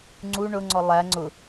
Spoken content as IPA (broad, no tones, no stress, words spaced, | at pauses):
ŋ͡ǀu ɳʊŋ͡ǀɔ lˠæ ŋ͡ǀʊ